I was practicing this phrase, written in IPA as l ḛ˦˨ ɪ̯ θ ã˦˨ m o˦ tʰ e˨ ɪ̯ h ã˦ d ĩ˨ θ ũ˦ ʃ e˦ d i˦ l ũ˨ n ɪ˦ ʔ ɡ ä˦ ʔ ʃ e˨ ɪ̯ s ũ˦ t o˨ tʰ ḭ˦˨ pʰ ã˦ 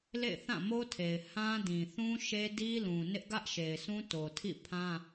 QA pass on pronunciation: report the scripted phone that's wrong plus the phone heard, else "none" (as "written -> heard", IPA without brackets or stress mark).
none